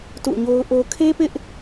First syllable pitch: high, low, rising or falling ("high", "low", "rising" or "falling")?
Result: falling